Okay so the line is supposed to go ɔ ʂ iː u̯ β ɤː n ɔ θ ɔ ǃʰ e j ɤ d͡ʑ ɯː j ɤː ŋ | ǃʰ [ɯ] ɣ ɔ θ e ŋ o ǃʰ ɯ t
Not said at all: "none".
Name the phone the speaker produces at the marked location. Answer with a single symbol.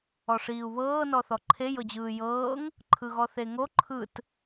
ɯ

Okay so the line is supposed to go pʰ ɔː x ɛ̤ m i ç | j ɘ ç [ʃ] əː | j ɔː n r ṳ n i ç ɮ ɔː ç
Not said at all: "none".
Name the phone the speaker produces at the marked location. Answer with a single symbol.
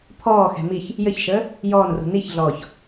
ʃ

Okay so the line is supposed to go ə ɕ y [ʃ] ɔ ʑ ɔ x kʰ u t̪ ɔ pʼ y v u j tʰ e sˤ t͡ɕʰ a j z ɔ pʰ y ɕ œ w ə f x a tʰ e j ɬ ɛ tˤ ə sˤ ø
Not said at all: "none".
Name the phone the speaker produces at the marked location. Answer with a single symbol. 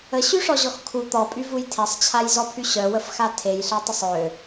ʂ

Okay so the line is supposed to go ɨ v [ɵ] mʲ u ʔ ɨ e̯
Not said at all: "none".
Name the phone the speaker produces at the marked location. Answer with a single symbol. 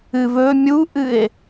ɵ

